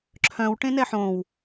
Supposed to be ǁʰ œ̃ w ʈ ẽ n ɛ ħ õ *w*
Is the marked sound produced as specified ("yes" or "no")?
yes